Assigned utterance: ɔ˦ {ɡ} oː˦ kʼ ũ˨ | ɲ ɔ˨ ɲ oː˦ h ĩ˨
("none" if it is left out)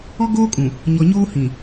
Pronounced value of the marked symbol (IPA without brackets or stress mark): ɡ